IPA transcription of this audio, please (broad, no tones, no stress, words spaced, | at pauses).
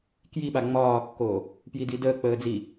kjiɓa ŋ͡mɒːkːoː | pjididəːk͡pəː d͡zi